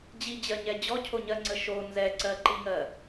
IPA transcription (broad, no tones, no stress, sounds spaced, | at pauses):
d͡ʑ i d͡ʑ ɜ ɲ ɛ d͡ʑ ɔ cʰ o ɲ ɜ ŋ͡ǀ ə ʃ o n z ɛ ǀ ɜ ǃ i ŋ ɜ